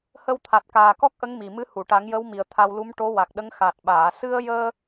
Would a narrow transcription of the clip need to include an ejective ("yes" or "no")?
no